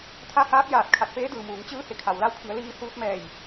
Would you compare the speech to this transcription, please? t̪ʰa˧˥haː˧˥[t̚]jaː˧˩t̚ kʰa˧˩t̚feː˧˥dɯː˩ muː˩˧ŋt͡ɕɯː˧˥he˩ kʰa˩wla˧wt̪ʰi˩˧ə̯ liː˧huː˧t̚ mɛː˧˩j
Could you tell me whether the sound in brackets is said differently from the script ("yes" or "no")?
yes